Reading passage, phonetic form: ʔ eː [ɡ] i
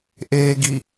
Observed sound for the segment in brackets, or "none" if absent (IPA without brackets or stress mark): ɡ